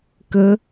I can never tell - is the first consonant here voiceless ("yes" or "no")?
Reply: yes